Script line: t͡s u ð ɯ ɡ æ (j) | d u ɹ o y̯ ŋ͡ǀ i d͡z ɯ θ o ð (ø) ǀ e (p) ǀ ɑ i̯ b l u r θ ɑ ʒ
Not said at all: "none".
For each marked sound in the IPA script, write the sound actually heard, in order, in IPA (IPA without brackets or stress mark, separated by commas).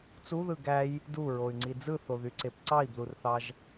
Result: j, y, p